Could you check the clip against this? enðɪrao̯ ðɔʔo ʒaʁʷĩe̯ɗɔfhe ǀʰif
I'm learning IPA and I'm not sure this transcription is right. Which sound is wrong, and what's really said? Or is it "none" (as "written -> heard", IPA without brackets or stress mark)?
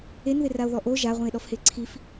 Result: none